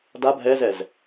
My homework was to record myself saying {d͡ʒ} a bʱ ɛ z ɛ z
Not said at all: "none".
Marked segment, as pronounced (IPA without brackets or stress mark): d